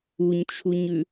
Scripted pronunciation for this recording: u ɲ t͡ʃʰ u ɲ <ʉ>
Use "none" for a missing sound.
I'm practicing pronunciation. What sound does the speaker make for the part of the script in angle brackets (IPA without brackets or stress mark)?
ʉ